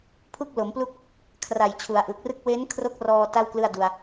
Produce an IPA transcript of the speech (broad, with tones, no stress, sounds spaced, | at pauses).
pʰ u˥˩ k̚ l o˩˦ m p l u˥˩ k̚ | kʰ r a˨˩ j t͡ɕʰ u˩˦ a̯ ʔ ɯ˨˩ k̚ r ɯ˥˩ k̚ w e˦˥ n kʰ r o˦˥ k̚ r ɔː˧ t a˥˩ w k l ɯ˥˩ a̯ d u˧ a̯